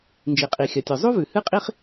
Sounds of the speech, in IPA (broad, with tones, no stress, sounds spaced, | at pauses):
n d͡ʒ i˩ qʼ i˩ xʲ ɐ˩ tʲ ɵ˩ zˤ u˥ v ʉ˩ h ɨ˥ qʼ i˥ χ